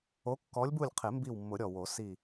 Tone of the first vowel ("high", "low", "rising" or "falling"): rising